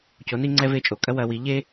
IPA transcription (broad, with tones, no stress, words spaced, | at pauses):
co˨˥ni˥ ŋ͡ǀɛ˥ve˥t͡ʃʼo˧˩˧ kʼɐ˥wɐ˨˥wi˨˥ ʎe˥